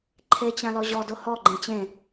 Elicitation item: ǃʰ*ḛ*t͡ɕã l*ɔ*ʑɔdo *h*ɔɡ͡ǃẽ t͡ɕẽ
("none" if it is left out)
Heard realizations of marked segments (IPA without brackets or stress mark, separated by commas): e, ɔ, h